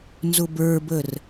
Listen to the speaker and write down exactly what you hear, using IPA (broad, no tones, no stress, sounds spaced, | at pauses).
n z ʊ b ə˞ b ə r